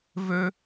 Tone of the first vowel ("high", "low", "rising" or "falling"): high